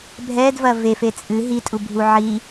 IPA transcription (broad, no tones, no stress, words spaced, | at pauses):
bʱɛdvɐ vefe t͡sʼɨ ɦitʼubʱu ʕi